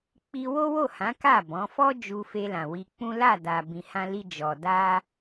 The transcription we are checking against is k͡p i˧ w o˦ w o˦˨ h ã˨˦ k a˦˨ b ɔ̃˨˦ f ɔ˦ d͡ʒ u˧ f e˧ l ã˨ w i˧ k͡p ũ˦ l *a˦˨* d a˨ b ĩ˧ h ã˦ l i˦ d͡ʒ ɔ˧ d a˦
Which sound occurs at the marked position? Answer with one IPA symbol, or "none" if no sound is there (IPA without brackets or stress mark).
a˦˨